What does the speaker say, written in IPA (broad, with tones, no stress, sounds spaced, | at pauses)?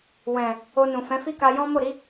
w ɛ̃˨ | o˧ n ũ˨ f ɛ̃˨˦ f i˦ k a˧ j ɔ̃˦ m o˦˨ ɾ i˨˦